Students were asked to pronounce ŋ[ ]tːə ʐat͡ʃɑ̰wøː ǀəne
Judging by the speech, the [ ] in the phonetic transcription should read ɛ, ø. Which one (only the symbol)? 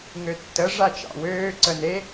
ø